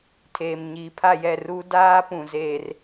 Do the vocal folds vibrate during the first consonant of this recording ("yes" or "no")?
no